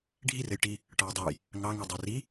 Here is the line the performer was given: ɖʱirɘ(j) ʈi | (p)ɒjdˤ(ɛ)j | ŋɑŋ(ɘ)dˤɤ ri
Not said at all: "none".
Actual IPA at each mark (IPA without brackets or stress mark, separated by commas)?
j, ʈ, ɘ, ɛ